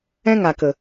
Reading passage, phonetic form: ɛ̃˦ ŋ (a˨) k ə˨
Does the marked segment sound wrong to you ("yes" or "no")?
no